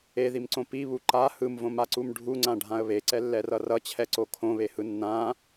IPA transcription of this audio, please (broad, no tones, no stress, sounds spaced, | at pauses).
e ð i m ǀ õ p i β u ǃ a h ɯ m v õ m a ǀ u m ɖʱ u ŋ͡ǀ ã ɖʱ ã ə̯ β e ǀ ɛ lː ɛ r ʌ r ʌ t͡ɕʰ ɛ ǀ o kʰ õ β e h ɯ nː ã